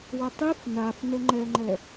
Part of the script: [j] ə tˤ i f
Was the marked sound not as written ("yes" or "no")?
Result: yes